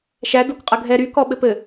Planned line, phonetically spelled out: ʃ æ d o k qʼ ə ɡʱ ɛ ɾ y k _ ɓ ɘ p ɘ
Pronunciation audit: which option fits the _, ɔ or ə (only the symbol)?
ɔ